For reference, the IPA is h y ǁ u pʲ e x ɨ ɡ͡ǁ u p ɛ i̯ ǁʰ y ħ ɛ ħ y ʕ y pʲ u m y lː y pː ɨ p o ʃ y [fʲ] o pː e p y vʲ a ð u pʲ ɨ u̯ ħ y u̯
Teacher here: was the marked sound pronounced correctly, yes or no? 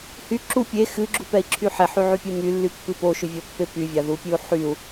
no